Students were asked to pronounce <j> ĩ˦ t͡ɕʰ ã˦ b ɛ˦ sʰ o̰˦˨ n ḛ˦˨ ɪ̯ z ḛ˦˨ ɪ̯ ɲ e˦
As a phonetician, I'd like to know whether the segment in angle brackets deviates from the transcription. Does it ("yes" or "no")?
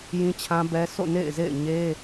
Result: no